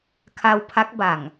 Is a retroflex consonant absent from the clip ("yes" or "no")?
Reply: yes